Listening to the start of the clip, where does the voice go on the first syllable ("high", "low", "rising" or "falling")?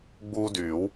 high